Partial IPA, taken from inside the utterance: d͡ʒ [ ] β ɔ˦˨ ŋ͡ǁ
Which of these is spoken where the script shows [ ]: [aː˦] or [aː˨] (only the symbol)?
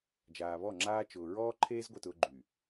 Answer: aː˨